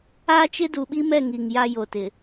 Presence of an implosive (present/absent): present